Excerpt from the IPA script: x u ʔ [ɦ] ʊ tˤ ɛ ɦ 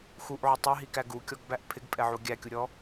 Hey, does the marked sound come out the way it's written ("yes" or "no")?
no